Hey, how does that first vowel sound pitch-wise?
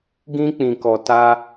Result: high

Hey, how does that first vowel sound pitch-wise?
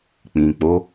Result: low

